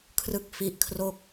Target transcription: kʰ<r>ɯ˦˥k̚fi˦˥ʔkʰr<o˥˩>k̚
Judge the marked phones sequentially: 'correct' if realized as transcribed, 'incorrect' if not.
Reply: correct, correct

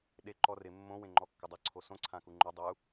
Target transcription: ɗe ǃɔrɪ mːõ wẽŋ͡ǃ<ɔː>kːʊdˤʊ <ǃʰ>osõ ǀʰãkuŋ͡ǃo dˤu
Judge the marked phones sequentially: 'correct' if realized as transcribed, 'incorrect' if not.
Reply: incorrect: ɔ, incorrect: ǀʰ

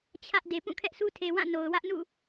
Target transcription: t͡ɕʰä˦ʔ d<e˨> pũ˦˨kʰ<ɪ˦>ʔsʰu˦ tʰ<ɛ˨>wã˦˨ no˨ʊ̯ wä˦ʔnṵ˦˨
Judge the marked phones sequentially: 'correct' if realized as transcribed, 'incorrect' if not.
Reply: correct, incorrect: ɛ˦, incorrect: e˨

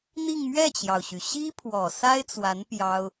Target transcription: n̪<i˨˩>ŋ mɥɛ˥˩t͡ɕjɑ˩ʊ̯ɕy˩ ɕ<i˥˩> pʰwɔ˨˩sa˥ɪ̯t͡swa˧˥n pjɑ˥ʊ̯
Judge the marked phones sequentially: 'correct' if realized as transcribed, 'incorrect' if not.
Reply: incorrect: i˥˧, incorrect: i˥

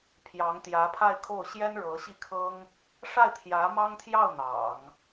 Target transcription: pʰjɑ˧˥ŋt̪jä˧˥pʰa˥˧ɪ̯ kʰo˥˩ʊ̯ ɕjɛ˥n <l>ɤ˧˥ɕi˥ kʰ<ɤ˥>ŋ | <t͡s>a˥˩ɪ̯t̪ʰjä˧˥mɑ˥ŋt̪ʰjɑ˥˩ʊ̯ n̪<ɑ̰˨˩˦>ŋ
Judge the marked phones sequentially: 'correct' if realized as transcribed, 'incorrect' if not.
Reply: incorrect: ɻ, correct, incorrect: ʂ, correct

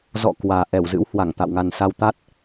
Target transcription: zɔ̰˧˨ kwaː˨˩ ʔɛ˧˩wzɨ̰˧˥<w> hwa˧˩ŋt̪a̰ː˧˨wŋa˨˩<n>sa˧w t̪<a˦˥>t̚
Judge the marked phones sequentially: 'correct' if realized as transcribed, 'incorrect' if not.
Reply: correct, correct, correct

